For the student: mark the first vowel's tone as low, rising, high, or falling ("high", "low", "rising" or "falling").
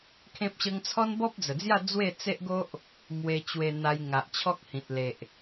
high